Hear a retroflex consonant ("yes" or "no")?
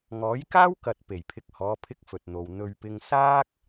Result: no